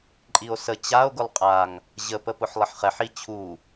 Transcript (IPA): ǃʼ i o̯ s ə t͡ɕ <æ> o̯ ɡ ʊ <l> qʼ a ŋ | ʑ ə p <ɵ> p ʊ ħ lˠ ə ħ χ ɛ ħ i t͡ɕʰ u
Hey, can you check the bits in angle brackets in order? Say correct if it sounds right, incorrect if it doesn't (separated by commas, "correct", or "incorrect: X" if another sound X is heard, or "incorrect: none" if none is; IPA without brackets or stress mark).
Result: incorrect: a, incorrect: lˠ, incorrect: ə